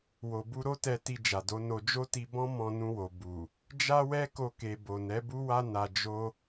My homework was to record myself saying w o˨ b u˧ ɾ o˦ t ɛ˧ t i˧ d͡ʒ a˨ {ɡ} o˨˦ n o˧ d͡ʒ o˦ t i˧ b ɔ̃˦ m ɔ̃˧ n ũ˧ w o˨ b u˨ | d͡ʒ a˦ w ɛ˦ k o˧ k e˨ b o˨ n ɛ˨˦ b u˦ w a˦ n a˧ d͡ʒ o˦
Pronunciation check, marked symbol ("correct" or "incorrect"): incorrect